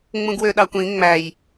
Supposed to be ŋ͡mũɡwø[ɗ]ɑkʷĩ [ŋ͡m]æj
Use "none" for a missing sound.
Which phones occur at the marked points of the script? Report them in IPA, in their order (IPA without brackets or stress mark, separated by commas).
ɗ, ŋ͡m